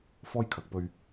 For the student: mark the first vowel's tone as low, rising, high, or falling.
high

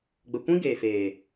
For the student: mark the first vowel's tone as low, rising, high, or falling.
low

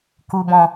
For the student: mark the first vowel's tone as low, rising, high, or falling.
low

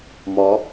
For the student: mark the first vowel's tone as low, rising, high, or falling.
rising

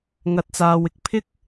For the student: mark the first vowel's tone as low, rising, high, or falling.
rising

